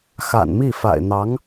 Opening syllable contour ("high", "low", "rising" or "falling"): low